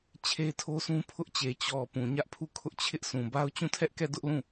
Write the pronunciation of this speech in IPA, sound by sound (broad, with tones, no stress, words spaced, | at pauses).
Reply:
t͡ɕʰe˦tʰo˦sũ˦ pʰʊ˦ʔt͡ɕe˨ t͡ɕɔ˨ pũ˨ɲä˦ʔpʰu˦˨ kʰʊ˦ʔ t͡ɕʰɪ˦ʔ sũ˨ba˦ʊ̯ t͡ɕũ˦˨tʰɛ˦ʔkɛ˦˨ dʊ˦ʔlũ˦˨